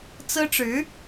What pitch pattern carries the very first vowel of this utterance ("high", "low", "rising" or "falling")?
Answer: high